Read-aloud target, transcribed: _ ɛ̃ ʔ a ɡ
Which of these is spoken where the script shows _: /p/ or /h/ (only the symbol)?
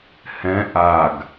h